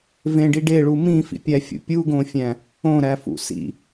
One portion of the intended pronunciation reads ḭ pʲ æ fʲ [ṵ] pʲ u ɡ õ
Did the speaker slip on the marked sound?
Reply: no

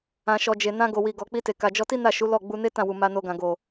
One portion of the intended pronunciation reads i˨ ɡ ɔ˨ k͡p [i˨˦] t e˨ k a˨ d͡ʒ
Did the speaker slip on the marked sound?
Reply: yes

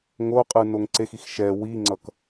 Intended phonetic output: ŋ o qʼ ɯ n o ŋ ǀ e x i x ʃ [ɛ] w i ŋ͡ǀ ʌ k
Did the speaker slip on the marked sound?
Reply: no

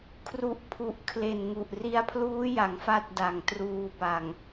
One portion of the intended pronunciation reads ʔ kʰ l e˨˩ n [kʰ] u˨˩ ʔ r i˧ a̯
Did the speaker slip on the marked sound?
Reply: yes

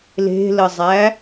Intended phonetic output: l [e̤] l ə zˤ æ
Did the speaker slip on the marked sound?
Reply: no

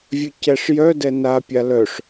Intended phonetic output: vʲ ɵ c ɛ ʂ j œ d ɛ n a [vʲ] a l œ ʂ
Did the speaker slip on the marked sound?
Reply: yes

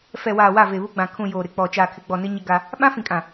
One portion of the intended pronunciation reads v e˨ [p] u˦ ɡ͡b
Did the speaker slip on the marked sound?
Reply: yes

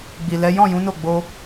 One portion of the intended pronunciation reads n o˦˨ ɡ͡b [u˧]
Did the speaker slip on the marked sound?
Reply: yes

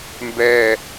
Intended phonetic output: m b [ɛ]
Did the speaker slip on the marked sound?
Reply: no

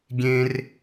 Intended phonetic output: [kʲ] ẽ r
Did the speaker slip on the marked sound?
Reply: yes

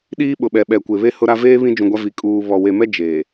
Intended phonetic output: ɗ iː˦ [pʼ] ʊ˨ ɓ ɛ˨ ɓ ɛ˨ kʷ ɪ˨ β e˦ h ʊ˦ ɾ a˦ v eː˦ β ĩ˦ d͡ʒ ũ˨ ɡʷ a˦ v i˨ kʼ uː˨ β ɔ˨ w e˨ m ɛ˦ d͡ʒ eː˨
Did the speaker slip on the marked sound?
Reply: yes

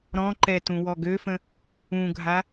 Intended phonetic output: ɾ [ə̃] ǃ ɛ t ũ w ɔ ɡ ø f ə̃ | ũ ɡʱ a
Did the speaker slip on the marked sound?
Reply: yes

